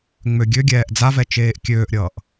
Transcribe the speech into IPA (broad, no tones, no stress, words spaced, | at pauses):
ŋ͡møɡʲøɡʲɛːʔ d͡zavɛ t͡ʃeːʔkʲøːʔɾʲʌːʔ